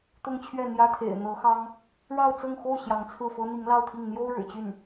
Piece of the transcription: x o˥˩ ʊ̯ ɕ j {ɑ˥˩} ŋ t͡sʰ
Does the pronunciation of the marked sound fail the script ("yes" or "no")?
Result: yes